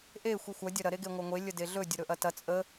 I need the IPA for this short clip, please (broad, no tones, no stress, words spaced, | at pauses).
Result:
ʔe xʷixʷɐ dʲɐɾɐ ɾeɡeŋʷɐŋʷe lʲədeɮɵ dʲəɾɵʔɐtɐ t͡sʼə